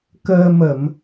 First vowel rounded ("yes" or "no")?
no